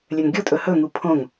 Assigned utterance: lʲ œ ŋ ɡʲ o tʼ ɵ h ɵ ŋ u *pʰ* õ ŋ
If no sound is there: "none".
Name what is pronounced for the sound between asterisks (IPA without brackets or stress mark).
pʰ